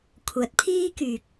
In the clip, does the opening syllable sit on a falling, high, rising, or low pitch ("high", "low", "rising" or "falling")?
rising